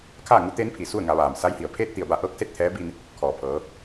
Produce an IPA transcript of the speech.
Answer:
kʰ aː˥˨ ŋ u˧˥ t̪ eː˧˥ n pʰ i˩ s u˥˨ ə̯ ŋ a˩˧ ʋ aː˩ m s a˧˥ j h i˩ ə̯ pʰ eː˥˨ t̚ t̪ i˧˩ ə̯ b a˧ ʔ ɤː˧˥ k̚ s e˥˨ t̚ t̪ʰ ɛː˧˥ b i˧ n | kʰ ɔː˩ pʰ ɤː˩˧

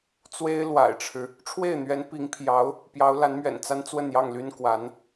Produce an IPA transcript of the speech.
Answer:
t͡s w e˥ ɪ̯ l w a̰˨˩ ɪ̯ ʈ͡ʂʰ ɻ̩˦ | ʈ͡ʂʰ w e˥˩ ɪ̯ n̪ ɥ ɛ˧˥ n p i˧˥ ŋ pʰ j ɑ˧˥ ʊ̯ | p j ɑ˧˥ ʊ̯ l a˧˥ n m ɥ ɛ̰˨˩ n t͡s a˥ n t͡s w ə˥˧ n j ɑ˥˩ ŋ l y˥ n k w a˧˥ n

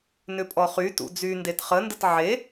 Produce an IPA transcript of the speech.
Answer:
n ʏ pʼ ɔ χ y t ṵ d͡z y n d e t χ ə n d ə t ʕ e

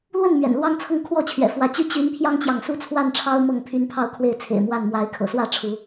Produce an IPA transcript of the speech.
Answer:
l w ə˥˨ n m ɥ ɛ̰˨˩ n l w ɑ˦ ŋ t͡sʰ ɤ˥˨ ŋ kʰ w ɔ˥˨ t͡ɕʰ ɥ ɛ̰˨˩ f w ä˨˦ t͡ɕ y˥˨ t͡ɕ y˨˦ n pʰ j ɑ˦ ŋ t͡ɕ j ɑ˨ ŋ s u˦ t͡sʰ w a˥˨ n ʈ͡ʂʰ ɑ˦ ʊ̯ m ɤ˥˨ ŋ pʰ y˦ n pʰ ɑ˥˨ ʊ̯ kʰ w e˥˨ ɪ̯ t͡sʰ ḛ˨˩ ɪ̯ m w a˥˨ n m w a˨˦ ɪ̯ kʰ ɤ̰˨˩ s w ä˥˨ ʈ͡ʂʰ u˨˦

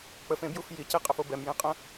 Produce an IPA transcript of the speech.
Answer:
k͡p ə f ẽ b j u f j i c e qʼ ə f o b ɛ m j ẽ qʼ ə̃

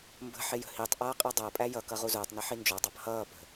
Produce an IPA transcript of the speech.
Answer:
m b ə̤ ħ ɪ j ə̤ h i tˤ ʔ ʌː qʼ ɛ dˤ æ pʼ æ j ʌ k ʌ ʁ u z ʊː tˤ n ʌ ħ i n d͡ʒ ɔ dˤ ɑ p h ʌː p ə̤

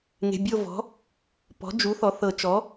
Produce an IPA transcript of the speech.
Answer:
ŋ e̤˩˧˩ bʲ o˦˨ v ɔ̤˩˥ | p ɔ̤˩˥ d͡ʒ u˩˥ θ ɔ˩˥ θ ɤ˨˩˦ t͡ʃ ɔ˩˥

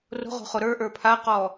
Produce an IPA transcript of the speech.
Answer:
r o̤ ʁ o̤ χ o ɾ ə˞ ʔ ə˞ pʰ a q ɔː

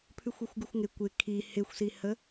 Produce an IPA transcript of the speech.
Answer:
pʰ ʉ xʷ ø xʷ ɡ ʉ xʷ ŋ ɪ kʷ ɪ kʰ i h ɪ xʷ s i h ə

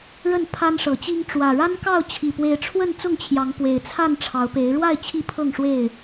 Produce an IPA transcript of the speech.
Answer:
ɻ ə˥˨ n pʰ a˦ n ʂ ɤ˨˦ t͡ɕ i˦ ŋ ʈ͡ʂ w ä˨˩ ɻ a˦ n k ɑ˥˨ ʊ̯ t͡ɕʰ i˨˩ p w e˨˦ ɪ̯ ʈ͡ʂʰ w ə˥˨ n t͡s ʊ˥˨ ŋ t͡ɕʰ j ɑ˨˦ ŋ p w e˨˩ ɪ̯ t͡sʰ a˥˨ n ʈ͡ʂʰ ɑ˨˦ ʊ̯ p e˨˦ ɪ̯ ɻ w a˥˨ ɪ̯ t͡ɕʰ i˥˨ pʰ ɤ˥˨ ŋ ʂ w e˥˨ ɪ̯

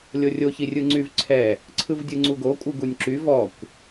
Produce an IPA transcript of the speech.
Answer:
lʲ o rʲ o ç i rʲ ɯ ŋ͡ǀ y v ǀʰ ɛ | ǀʰ ɯ v dʲ ɯ ŋ͡ǀ u ɡ o kʷʼ ɯ ɡ u nʲ ǁ y v ɔ kʷ

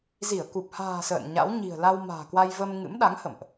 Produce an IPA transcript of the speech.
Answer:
z i˧˩ ə̯ k u˨˩ p̚ h a̤ː˨˩ s ə̰ː˧˨ n ɲ a̰˧˥ w ɲ i̤˨˩ ə̯ l a˧ w m a̤ː˨˩ k w a˧ j v ə˧ m ŋ ɨ̰˧˥ m ɗ a˨˦ ŋ h ə̰˧˨ m ʔ

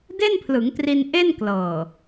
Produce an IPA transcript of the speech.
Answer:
d e˥˩ n pʰ l ɯ˩˦ ŋ t r i˧ n ʔ e˥˩ n k l ɤː˨˩

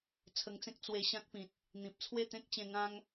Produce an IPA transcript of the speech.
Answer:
t͡sʰ ə˧ ŋ t͡s ẽ˦ k̚ t͡s w e˧ ɕ ã˦ k̚ p ĩ˨ t̚ | n̪ ĩ˨ p̚ t͡sʰ w e˥˧ t̪ ẽ˦ k̚ t͡ɕ ẽ˧ ŋ ã˦ ŋ

